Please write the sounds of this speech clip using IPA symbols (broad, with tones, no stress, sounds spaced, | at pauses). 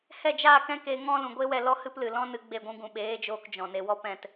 h ɛ˦˨ d͡ʒ aː˦˨ k ɛ̃˦ k e˧ ŋ ɔ̃˦ l ũ˨ ɡʷ e˦ w ɛ˧ l ɔ˦ h ɨ˦ p l ɨ˨ l ɔ̃˦ n ɨ˧ ɡ͡b e˦˨ ɡʷ ũ˦ ɡ ũ˨ ɓ eː˨˦ d͡ʒ oː˧ k d͡ʒ ɔ̃˨ n e˨ w ɔ˦ p ɛ̃˦˨ t